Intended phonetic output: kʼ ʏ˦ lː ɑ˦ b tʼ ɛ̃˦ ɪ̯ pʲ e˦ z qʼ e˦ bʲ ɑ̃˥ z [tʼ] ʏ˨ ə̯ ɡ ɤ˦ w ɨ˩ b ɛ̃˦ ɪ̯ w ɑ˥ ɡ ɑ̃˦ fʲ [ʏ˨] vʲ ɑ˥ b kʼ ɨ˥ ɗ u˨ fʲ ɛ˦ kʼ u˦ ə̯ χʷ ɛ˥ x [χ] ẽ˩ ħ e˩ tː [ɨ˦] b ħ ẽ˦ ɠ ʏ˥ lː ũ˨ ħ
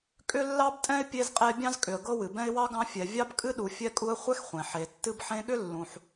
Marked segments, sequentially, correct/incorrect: incorrect: kʼ, incorrect: ɛ˨, incorrect: χʷ, correct

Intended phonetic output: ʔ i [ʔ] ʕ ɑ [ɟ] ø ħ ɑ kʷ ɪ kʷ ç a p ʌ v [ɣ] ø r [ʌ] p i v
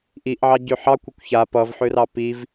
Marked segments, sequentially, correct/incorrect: correct, correct, incorrect: ħ, incorrect: ɑ

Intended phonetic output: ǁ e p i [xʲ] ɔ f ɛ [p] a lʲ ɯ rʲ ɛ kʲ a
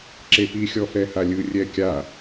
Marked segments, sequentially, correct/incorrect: correct, incorrect: h

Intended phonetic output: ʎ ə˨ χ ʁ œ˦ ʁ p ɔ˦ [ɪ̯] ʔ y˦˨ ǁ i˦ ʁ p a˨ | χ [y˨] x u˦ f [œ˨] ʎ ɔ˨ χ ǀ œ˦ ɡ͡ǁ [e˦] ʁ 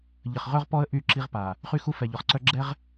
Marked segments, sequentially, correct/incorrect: incorrect: ə̯, incorrect: y˦, incorrect: ɛ˨, incorrect: ɛ˦

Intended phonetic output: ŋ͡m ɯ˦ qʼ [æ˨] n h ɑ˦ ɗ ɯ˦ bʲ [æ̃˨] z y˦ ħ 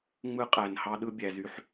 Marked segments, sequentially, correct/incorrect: correct, incorrect: æ˨

